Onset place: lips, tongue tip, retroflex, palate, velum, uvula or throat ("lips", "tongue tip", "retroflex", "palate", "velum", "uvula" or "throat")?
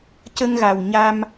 palate